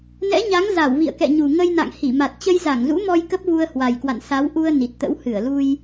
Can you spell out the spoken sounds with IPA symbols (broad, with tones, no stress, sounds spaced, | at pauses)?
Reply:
n ɛ̰˧˥ ɲ a˨˦ ŋ z a˧˩ w v ḭ˧˨ ə̯ k ɛ̰˧˨ ɲ u˨˩ ŋ ə˧ j n a̰˧˨ ŋ h i˧˩ m a˨˩ t̚ t͡ɕ ə˧ j z a˧˩ ŋ z ṵ˧˥ m ɔ˧ j k ə˦˥ p̚ v u˧ ə̯ h w a˨˩ j k w a̰˧˨ n s a˨˦ w ʔ u˧ ə̯ n i˨˩ t̚ t̪ ə̰˧˥ w h ɨ˧˩ ə̯ l u˧ j